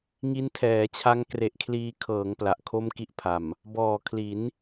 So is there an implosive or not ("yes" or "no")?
no